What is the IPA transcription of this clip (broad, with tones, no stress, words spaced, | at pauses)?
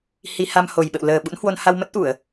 hi˧ ha˧m ho˨˩jɓə̰˧˨w ləː˨˩ɓṵ˧˥nhwo˧n ha˧wmə˦˥t̚ʔu˧˩˨ə̯